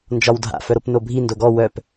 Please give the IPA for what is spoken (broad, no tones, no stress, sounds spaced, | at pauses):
n d͡ʒ ɒ w dʱ a̰ f œ ɾ o p n o bʱ i n d o ɡ ɔ w œ p